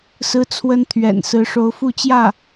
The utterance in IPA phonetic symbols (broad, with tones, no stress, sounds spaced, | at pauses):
s ɹ̩˥ t͡sʰ w ə˥ n t̪ʰ ɥ ɛ̰˨˩ n s ɹ̩˧˥ ʂ o˧˥ ʊ̯ f u˥˧ t͡ɕ j ä˥˩